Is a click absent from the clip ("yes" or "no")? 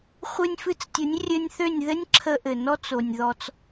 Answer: no